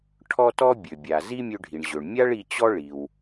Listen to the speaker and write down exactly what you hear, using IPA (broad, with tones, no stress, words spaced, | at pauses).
ʈʰɔ˥tɔ˥ bʲø˩bʲa˩ zi˥mʲø˧ɖʱi˩ɳ ʑø˩ɳmʲa˥ɭ i˧t͡ɕɔ˥ɭi˩w